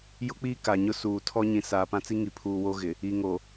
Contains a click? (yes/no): no